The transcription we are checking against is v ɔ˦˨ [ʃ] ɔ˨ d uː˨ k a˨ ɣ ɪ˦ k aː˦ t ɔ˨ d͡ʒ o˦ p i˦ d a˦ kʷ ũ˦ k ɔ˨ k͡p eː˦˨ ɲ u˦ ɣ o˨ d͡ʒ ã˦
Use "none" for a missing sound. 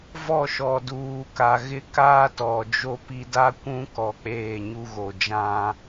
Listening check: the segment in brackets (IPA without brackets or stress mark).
ʃ